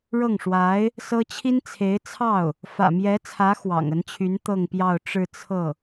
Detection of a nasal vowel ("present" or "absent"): absent